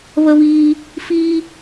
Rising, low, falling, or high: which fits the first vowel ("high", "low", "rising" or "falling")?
high